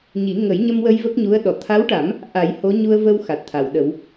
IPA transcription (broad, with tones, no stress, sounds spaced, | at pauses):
ɲ i˨˩˦ ŋ ə˨˩˦ j ɲ ə˧ m w ə˧ j v ə˦˥ k̚ ɲ u˧˥ ə̯ ɗ ɔ˨˩˨ t̪ʰ a˧˥ w ʈ a˨˩˦ m | ʔ a˨˩˦ j h o˧˥ ɲ u˧ ə̯ v ə˧ w x a˨˩ t̚ t̪ʰ a˨˩˨ w ɗ ə˨˩˦ w